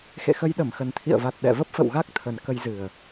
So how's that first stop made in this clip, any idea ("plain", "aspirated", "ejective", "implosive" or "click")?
implosive